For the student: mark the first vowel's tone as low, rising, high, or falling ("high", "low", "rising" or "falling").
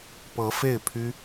rising